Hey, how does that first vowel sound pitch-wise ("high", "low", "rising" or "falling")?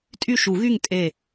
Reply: falling